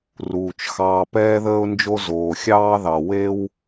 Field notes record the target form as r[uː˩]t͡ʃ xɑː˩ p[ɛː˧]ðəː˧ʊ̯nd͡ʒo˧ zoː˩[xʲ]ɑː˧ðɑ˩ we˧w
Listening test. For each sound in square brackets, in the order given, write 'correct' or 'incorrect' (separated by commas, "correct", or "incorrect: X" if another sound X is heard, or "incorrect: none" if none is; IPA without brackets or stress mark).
correct, correct, correct